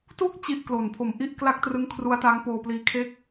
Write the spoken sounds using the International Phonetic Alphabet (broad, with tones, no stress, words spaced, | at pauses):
tu˥˩k̚ t͡ɕi˥˩ʔklo˨˩n pʰo˨˩mʔi˥˩ʔ kla˥˩k̚trɯ˦˥ŋkʰru˦˥a̯ta˦˥ŋ poː˧pliː˧kʰe˥˩k̚